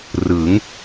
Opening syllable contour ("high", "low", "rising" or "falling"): rising